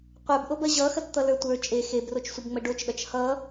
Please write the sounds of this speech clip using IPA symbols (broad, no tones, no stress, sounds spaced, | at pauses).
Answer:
qʷ ə˞ b ʔ o b ɐ ʑ ʌ x ɐ t t̪ ʌ l ə˞ tʷ ə˞ t͡ʃʼ e x e b r o t͡ʃ sʷ ʌ b ŋ͡m ə ɖ o t͡ʃ ɗ ʌ t͡ʃ h ʌ